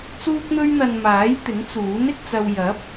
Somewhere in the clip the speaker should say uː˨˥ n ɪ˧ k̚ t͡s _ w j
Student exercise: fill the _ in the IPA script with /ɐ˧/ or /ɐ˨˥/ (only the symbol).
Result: ɐ˧